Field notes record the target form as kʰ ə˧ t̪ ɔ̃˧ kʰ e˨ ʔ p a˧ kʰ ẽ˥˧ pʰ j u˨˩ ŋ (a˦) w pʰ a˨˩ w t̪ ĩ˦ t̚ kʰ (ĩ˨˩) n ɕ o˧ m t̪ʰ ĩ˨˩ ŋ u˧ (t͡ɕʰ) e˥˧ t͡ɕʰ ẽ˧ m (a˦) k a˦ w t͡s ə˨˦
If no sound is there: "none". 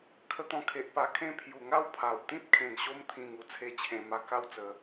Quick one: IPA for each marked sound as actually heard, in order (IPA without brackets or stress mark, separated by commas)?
a˥˧, ẽ˨˩, t͡sʰ, a˧